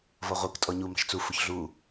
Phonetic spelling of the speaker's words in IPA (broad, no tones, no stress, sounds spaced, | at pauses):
v ɔ ʁʷ i k tʼ ɔ ɲ u m ɑ̤ ʃ t͡s u f ʊ ç ɮ u